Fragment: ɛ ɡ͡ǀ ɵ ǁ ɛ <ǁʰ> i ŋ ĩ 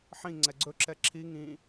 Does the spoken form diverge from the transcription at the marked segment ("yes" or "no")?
no